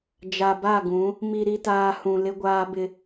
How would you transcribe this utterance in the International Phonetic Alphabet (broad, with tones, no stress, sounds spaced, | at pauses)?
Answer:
d͡ʒ a˨ b a˦˨ ɡ ũ˨˦ | m i˨ ɾ i˨ t aː˨ h ũ˨ l ɪ˦ ɡʷ aː˦ b ɪ˦